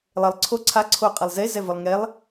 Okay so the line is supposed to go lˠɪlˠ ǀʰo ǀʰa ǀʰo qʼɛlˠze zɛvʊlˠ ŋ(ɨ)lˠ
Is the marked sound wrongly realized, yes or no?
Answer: yes